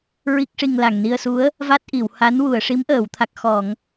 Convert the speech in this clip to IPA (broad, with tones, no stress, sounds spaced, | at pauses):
ɹ i˦˥ k̚ ʂ i˧ ŋ l a˨˩ ŋ n i˧ ə̯ s u˧˥ ə̯ | v a˦˥ t̚ ʔ i˨˩˨ w h a˧˥ n w u˨˩˨ ə̯ ʂ i˧˥ m ʔ əː˨˩˨ w t̪ʰ a˨˩ k̚ x ɔ˨˩˨ ŋ